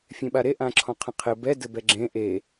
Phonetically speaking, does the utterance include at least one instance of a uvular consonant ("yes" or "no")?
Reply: yes